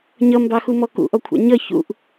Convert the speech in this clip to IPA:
ɲ ʌ m b ɑ x u m ɔ k ṵ ʔ ɔ kʷʰ ɑ̰ ɲ ʌ ç ṵ ʔ

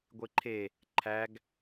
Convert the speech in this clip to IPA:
ɡʷ e ǃʰ e | ǃʰ æ ɡ

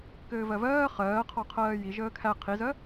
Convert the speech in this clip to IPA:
k ɘː v ɜ v ɜː χ ɜː qʰ ɔ qʰ ɜː j i ʒ əː kʰ æ qʰ i z ɜ

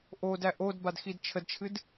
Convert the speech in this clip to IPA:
ʔ o d æ ʔ o d b a d x i d t͡ʃʰ ə d t͡ʃʰ ɨ d

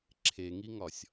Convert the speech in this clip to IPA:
ǁʰ e ŋ i ŋ ɒ sʲ

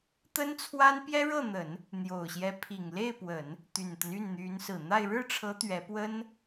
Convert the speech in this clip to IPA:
t̪ ə˥ n t͡sʰ w a˥ n p j ɛ˥ ɻ ɤ˥˩ n̪ ə˨˩˦ n | n̪ j o˨˩ ʊ̯ ɕ j ɛ˧˥ pʰ i˨˩ ŋ l e˥˩ ɪ̯ p w ə˨˩˦ n | t̪ y˨˩ n t̪ ə˦ n y˥˩ n n̪ y˧˥ n s ɹ̩˨˩ n̪ a˥˧ ɪ̯ ɻ ɻ̩˥˩ ʈ͡ʂʰ ɤ˧˥ t̪ ɥ ɛ˧˥ p w ə˥ n

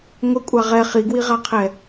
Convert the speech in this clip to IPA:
ŋʷ ɪ kʷʼ a ʁ ɛ χ i ɡ w i ʁ a qʰ ɛ

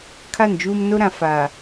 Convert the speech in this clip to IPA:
kʰ a˦˨ n d͡ʒ uː˦ m n o˦ ɾ ã˨ f aː˨

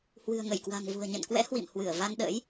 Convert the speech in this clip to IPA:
h w ɨ̤˨˩ ə̯ ŋ ə˧˩ j k w a̤˨˩ ŋ v ṳ˨˩ ə̯ ɲ ə̰˧˨ n k w ɛ̰˧˥ h w ḭ˧˨ m h w ɨ˧˩ ə̯ v a˧ n ɗ ə̰˧˥ j

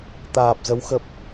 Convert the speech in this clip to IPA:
t̪ aː˨˩ p̚ z ə˨˦ w x ə˨˩ p̚

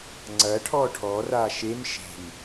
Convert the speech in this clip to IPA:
ŋ͡ǀ ɐ ʈʰ ɔː ʈʰ ɔ r aː ʃ e m ʃ e̤ m

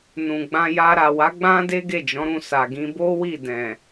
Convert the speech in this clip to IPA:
n ũ˨ ɡ͡b ã˧ j a˧ ɾ a˨ w a˨˦ ɡ͡b ã˦ d e˦ ɡ e˦˨ d͡ʒ ɔ̃˨˦ ɾ ũ˦˨ s a˨ ɡ ĩ˧ b o˦ w i˦˨ d ɛ̃˨

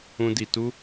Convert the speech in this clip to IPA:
ũ˧ d i˨ t u˦

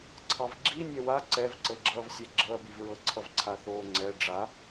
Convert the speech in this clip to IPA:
ǀʰ ɑ v ɡ͡ǁ i nʲ ɛ w a ǀ ɛ v ǀ ɤ ɡ͡ǁ ʌː v sʲ ɛ ɡ͡ǁ ɤ ɐ̯ b i v ɹ ɤ ǀʰ ʌ v ǀʰ a θ oː ŋ͡ǀ ɛ ɖ͡ʐ a

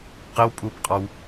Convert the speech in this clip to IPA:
q ɘ w pʼ u p qʼ ɑ w

